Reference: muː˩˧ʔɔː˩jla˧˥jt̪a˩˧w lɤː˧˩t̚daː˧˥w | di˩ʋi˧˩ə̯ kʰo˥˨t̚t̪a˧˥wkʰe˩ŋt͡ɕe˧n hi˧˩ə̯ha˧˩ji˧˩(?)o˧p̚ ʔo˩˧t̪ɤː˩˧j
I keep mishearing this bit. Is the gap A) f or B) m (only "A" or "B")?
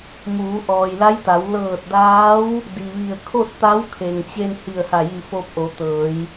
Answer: A